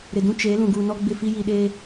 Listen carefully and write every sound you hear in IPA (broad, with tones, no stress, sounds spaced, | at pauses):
ɾ ɪ˨ d ũ˦ t͡ʃ e˨˦ l ũ˨ ɡ uː˨ n ɔ˦ ɡ͡b ɪ˦˨ f i˦ j i˨ ɗ eː˦